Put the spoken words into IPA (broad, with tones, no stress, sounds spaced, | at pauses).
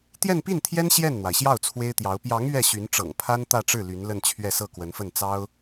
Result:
t̪ j ɛ˥˧ n p i˥˩ n t̪ʰ j ɛ˥ n ɕ j ɛ˥˩ n n̪ w a˩ ɪ̯ ɕ j ɑ˥˩ ʊ̯ t͡sʰ w e˥ ɪ̯ t̪ j ɑ˧˥ ʊ̯ p j ɑ˧˥ ŋ ɥ ɛ˥˩ ɕ y˧˥ n ʈ͡ʂ ɤ̰˨˩ ŋ pʰ a˥ n t̪ ä˥˧ ʈ͡ʂ ɻ̩˥˩ l y˧˥ n l ə˥˧ n t͡ɕʰ ɥ ɛ˥˧ s ɤ˥˩ k w ə˧˥ n f ə˥˩ n t͡s ɑ˥ ʊ̯